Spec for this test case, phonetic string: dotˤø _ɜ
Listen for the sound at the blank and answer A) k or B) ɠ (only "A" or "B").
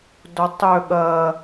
B